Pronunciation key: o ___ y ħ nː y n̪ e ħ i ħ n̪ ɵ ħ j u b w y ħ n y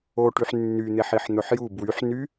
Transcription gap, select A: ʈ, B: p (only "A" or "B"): A